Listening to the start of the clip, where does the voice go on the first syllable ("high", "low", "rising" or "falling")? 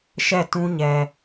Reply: falling